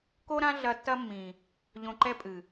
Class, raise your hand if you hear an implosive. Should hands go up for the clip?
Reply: no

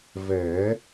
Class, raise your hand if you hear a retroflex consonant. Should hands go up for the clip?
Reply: no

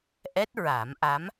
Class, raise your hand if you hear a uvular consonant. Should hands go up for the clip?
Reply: no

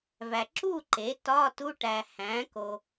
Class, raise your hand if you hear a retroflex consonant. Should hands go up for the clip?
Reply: yes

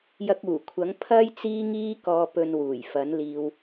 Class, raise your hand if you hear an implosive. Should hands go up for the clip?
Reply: no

